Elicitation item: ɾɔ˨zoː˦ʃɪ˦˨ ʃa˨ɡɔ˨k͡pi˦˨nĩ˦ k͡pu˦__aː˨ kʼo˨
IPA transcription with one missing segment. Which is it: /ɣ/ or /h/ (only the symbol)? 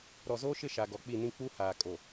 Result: h